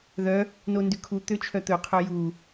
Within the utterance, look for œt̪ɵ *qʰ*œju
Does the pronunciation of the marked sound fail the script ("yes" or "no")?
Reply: no